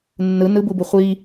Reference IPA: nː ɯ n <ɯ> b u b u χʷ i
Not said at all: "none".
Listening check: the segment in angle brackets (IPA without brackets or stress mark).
ɯ